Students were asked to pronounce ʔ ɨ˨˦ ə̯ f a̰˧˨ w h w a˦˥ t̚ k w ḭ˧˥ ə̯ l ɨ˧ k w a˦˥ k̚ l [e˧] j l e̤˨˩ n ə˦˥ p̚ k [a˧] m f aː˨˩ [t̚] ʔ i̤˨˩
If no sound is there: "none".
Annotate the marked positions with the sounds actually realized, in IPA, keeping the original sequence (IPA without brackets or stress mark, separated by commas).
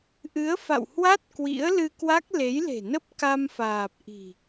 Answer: e˨˦, a˧, p̚